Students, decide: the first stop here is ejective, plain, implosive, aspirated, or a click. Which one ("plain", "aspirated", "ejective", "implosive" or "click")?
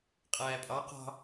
ejective